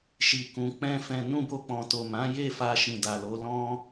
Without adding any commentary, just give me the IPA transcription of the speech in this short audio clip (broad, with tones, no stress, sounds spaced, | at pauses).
ʃ i˨ k ũ˨ k͡p ɛ̃˧ f ɛ̃˨ n ũ˧ b o˧ k͡p ɔ̃˨ t o˨ m ã˨˦ j e˦˨ f a˧ ʃ ĩ˨ d a˨ l o˨˦ l ɔ̃˦